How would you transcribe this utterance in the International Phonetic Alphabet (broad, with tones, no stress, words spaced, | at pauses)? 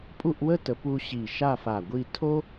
pʼu˥˧ʔwə˥tə˩˧pu˧ ɕi˧˩ʃa˥˧fa˧˩ɡʷi˥˧ tʰo˥